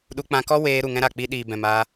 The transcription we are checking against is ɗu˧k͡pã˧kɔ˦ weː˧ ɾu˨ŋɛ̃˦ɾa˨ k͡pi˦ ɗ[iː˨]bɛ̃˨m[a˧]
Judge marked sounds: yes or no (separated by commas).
yes, no